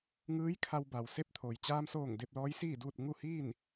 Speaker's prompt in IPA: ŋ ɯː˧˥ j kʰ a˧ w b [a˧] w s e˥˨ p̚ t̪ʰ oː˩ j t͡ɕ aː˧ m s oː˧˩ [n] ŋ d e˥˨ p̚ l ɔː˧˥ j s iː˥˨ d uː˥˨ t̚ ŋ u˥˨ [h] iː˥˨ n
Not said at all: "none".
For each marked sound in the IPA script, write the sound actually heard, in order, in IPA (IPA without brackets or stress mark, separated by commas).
a˩, none, h